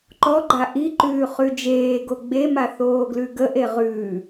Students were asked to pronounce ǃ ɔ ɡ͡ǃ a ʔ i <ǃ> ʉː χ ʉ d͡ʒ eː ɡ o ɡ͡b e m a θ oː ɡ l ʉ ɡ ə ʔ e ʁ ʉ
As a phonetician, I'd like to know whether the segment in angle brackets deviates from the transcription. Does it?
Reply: no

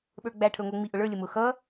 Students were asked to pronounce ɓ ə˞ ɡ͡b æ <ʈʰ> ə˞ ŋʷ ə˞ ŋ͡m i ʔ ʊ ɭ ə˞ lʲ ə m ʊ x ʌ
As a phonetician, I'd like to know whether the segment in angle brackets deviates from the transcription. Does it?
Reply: no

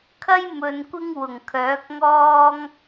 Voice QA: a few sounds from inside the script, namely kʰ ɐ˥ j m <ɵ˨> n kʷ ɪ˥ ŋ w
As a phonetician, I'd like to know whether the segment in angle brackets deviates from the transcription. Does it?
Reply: no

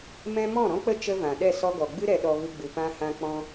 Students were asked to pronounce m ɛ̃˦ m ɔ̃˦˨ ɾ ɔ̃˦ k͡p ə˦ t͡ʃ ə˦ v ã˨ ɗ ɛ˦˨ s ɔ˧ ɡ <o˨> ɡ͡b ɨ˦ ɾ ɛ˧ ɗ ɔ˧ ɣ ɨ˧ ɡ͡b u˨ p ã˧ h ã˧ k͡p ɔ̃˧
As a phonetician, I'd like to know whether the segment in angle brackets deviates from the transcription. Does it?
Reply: yes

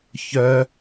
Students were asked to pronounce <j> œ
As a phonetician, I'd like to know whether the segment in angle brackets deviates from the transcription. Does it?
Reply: yes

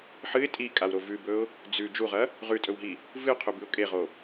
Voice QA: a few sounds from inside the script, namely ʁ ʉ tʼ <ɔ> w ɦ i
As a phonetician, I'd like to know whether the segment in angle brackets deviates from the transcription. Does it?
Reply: yes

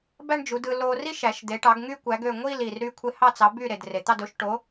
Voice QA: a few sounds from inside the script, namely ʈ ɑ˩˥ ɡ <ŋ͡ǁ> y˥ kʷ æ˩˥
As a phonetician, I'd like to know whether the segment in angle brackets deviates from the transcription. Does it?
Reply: yes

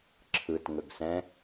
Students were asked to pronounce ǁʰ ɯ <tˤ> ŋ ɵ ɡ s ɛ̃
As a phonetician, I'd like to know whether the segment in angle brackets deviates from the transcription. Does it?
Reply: yes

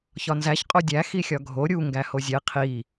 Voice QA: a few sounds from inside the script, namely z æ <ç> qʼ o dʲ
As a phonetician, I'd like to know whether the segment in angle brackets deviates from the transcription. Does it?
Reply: no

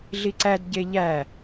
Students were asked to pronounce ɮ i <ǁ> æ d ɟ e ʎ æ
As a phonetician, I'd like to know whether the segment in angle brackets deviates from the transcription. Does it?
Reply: yes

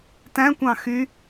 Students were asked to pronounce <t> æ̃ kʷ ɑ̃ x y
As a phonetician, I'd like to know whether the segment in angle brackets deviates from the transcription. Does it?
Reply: no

